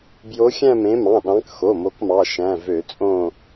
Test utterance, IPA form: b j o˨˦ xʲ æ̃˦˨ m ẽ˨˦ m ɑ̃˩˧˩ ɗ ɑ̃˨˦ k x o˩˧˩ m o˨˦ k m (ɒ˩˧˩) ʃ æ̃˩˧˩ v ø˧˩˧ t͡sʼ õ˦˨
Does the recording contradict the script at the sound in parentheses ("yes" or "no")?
yes